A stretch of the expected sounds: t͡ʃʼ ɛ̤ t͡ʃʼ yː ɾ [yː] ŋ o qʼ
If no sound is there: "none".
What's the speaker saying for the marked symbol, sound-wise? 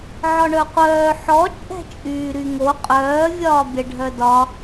y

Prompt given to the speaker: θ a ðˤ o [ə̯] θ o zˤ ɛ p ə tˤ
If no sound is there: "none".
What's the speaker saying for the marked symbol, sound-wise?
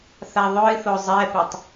ɪ̯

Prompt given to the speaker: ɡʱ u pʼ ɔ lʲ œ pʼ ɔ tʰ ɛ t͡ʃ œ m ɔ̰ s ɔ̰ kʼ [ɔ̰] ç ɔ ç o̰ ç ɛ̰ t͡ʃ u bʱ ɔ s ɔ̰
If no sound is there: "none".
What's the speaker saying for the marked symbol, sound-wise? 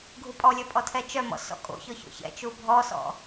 o̰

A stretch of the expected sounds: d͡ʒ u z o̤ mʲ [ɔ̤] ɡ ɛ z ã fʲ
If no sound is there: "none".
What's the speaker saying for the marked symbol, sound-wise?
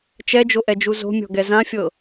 ɔ̤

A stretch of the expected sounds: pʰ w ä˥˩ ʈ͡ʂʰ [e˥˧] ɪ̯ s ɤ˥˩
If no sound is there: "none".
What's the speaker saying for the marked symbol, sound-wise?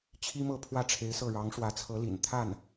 e˧˥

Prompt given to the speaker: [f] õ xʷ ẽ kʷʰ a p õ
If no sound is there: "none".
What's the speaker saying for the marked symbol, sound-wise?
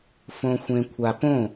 f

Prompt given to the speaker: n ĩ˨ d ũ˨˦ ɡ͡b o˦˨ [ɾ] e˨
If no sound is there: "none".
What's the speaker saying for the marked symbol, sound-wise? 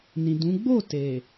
t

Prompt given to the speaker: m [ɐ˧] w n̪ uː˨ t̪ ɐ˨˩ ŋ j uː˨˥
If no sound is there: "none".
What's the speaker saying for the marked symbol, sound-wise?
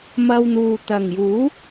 ɐ˧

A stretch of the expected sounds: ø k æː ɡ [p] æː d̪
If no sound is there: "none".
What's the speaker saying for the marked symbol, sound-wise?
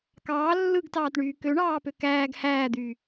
h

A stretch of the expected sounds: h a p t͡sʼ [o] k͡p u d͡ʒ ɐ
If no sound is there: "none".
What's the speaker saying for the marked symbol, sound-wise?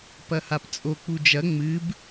o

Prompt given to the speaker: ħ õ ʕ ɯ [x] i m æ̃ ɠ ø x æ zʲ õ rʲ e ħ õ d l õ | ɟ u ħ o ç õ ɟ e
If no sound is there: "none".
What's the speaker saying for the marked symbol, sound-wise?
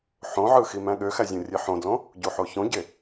x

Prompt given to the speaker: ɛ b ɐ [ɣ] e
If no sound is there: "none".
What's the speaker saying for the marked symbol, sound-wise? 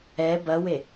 w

